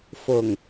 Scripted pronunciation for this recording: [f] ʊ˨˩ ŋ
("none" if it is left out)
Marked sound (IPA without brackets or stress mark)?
f